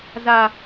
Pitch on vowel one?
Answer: high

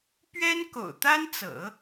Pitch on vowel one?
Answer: high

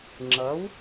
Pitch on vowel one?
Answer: rising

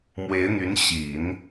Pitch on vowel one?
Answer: rising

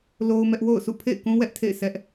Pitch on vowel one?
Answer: high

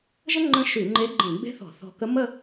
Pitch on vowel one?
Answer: high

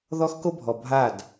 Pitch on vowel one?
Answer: high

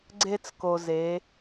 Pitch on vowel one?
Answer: high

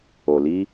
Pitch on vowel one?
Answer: low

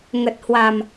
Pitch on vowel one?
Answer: low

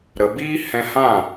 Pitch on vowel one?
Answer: low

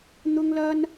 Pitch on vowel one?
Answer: high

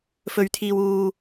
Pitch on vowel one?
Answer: low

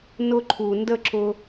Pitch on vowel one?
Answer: high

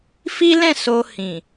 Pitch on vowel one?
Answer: high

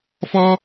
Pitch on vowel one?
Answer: high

